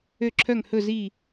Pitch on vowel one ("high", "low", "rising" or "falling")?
falling